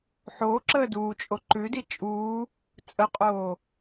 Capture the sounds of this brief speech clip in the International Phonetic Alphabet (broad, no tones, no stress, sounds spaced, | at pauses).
ħ oː ǁ əː d uː t͡ʃʼ o ǃ ʉ d i t͡ʃʼ uː | t͡sʼ ə qʼ oː